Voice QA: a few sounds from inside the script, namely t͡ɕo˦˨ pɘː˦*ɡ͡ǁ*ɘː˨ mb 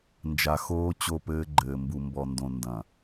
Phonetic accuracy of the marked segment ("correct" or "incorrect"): incorrect